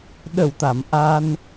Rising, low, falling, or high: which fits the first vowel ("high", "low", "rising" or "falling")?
low